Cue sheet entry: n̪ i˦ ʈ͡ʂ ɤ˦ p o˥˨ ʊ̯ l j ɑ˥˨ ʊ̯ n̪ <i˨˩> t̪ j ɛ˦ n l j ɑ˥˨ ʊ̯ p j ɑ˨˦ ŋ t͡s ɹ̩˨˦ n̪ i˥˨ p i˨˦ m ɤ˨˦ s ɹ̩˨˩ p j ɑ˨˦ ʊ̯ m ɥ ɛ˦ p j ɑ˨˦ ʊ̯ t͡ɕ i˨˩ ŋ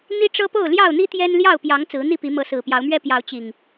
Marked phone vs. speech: incorrect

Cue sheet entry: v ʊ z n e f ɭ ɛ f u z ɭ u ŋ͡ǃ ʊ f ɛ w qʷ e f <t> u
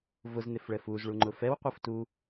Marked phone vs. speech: correct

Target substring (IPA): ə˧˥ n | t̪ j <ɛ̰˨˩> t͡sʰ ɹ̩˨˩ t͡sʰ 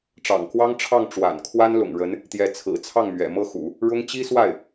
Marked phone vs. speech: incorrect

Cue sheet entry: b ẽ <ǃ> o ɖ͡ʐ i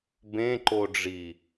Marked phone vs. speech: correct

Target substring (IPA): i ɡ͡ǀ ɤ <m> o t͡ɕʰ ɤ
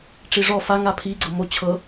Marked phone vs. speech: correct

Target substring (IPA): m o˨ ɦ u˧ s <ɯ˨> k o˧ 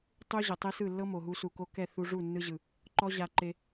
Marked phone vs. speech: incorrect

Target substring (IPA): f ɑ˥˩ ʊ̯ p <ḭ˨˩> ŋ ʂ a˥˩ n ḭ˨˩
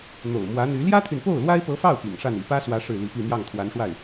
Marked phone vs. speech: correct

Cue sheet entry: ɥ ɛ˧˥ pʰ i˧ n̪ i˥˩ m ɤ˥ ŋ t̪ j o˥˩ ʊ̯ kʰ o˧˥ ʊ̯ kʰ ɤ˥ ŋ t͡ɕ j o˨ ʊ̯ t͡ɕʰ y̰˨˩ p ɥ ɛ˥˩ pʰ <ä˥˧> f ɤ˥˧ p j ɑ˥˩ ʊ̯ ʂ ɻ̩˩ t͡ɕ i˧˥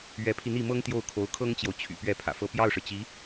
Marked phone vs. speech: incorrect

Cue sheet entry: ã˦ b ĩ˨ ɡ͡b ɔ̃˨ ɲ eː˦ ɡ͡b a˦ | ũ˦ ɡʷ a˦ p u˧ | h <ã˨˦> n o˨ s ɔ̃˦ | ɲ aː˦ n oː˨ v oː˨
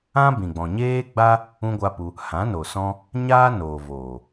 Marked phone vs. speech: correct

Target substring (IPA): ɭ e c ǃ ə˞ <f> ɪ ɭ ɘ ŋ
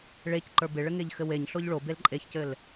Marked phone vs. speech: incorrect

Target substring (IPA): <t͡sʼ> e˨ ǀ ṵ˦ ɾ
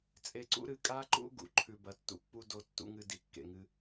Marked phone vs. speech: correct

